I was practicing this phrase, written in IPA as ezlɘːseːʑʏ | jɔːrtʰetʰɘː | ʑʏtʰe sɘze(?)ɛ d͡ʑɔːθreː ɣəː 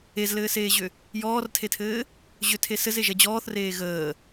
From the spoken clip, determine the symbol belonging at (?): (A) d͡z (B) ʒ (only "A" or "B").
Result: B